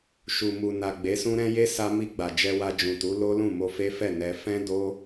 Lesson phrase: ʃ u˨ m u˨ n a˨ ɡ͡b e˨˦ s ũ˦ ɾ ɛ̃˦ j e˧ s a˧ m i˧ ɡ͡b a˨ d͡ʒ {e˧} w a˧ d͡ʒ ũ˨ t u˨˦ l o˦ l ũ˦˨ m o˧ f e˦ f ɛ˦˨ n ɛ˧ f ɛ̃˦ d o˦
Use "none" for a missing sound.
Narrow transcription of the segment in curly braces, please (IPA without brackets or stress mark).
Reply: ɛ˧